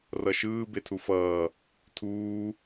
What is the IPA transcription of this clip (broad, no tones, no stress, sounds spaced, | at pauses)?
r ʌ ʃ ɯː b e tʰ u f ʌː | tʰ uː